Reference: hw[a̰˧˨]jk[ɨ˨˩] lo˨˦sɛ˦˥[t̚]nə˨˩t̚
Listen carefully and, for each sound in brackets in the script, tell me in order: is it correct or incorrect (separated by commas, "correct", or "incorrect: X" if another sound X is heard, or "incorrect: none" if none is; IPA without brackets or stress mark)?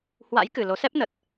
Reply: incorrect: a̰˧˥, correct, incorrect: p̚